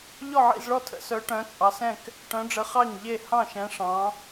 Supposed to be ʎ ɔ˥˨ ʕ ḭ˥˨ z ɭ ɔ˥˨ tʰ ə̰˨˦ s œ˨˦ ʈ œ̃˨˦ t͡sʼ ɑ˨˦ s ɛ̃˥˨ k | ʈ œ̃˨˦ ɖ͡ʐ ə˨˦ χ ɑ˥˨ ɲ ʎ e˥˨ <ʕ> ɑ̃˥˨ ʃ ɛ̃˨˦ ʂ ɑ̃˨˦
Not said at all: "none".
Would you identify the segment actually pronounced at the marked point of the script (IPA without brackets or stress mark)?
h